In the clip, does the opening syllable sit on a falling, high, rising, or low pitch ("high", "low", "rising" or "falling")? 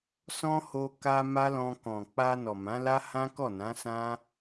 high